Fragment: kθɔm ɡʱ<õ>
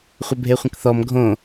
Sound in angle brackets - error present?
no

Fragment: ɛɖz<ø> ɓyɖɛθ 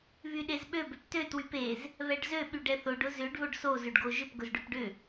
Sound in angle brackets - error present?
no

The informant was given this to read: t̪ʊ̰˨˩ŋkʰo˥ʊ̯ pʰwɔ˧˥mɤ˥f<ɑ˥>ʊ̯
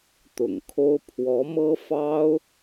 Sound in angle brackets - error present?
no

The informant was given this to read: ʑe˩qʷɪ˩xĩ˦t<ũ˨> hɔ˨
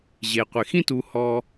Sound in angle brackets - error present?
yes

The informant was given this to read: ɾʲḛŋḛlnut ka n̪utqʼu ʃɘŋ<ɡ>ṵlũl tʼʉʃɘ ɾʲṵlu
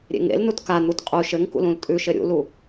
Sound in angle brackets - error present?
yes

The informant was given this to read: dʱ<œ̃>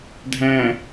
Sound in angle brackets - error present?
yes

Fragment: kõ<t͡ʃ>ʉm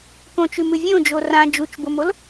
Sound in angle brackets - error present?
no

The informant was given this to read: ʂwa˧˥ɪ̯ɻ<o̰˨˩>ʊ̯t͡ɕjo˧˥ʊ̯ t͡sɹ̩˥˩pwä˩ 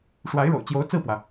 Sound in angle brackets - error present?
no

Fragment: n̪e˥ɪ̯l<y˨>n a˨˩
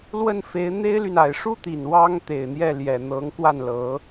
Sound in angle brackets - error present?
no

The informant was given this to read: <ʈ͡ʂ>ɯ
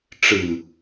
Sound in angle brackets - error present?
no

